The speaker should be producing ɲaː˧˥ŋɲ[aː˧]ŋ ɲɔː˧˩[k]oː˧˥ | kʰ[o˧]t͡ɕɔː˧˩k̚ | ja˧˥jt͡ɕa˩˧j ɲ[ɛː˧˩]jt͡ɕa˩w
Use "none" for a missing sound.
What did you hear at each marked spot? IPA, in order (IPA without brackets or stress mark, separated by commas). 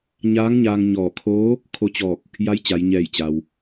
aː˧, kʰ, o˧, ɛː˧˩